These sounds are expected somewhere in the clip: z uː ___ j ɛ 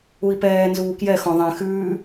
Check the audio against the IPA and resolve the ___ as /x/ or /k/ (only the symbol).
k